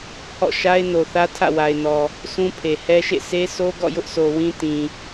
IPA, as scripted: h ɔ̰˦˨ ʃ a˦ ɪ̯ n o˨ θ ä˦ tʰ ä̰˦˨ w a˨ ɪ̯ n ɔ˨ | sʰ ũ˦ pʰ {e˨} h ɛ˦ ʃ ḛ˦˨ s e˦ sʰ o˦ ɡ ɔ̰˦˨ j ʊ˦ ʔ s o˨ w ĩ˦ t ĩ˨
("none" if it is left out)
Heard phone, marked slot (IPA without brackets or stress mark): e˨